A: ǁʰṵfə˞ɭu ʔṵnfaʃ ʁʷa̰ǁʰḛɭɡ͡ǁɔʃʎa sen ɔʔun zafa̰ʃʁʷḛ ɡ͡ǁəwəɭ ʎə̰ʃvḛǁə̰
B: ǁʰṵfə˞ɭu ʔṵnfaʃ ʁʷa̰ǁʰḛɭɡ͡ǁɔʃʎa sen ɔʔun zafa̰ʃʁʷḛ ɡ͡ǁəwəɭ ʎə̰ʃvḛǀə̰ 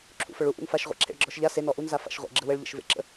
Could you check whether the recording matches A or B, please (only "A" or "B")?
A